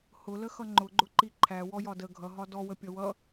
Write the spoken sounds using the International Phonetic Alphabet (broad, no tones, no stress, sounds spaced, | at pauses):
h ʊ l ə x ʌ ŋ͡ǃ ʊ ɡ͡ǃ ʊ ǃ i ǃʰ æ w ɔ j ɒ d ə ɡʱ ʌ ɦ ɒ d ɔ w ə pʲ ʌ w ʌ